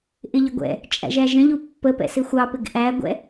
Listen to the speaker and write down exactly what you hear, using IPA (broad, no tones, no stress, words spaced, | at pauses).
ʔɪʎɪɡʷɛ̰ | t͡ʃʼæ̰ʒæʒə̃ʎu pːəpɛ̰sɪ xʷɑpɪɡ ʔæɡʷɛ̰